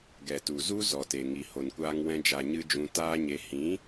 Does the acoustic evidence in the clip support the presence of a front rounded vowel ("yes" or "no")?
no